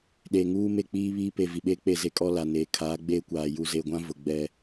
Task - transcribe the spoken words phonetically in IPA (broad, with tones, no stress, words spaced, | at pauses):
ɗeː˨ŋuː˦ me˦˨k͡piː˦βiː˦ pe˨ vi˨ɓeː˦k͡pe˦˨ ze˦kʼɔ˦ la˨neː˨ kʰaː˨˦ɡ͡beː˦kʷaː˨ ju˨ze˨ɡʷã˦ vʊ˨ɡ͡bɛ˦